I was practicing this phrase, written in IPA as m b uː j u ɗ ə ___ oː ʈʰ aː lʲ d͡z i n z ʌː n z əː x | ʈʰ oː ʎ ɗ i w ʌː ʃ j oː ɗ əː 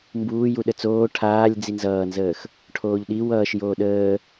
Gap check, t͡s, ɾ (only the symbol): t͡s